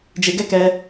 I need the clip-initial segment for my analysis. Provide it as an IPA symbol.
d͡ʒ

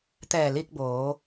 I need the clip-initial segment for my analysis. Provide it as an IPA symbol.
t̪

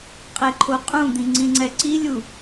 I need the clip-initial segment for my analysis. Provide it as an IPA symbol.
qʼ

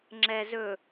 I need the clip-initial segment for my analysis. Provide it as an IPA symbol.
ŋ͡ǁ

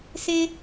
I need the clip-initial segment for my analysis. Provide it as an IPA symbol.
s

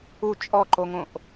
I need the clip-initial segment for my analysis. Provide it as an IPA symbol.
u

